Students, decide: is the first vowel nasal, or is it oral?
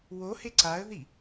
oral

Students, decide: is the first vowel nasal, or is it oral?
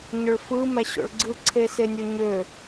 oral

